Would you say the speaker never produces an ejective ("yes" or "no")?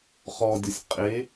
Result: no